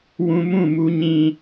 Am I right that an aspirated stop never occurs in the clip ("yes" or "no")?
yes